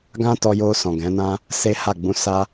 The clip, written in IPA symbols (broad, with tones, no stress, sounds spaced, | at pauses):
ɡ ã˦ t ɔ˧ j o˧ s ɔ̃˨ ɡ ɛ̃˨˦ n ã˦ | s e˦ h a˦˨ ɡ͡b ũ˧ s a˧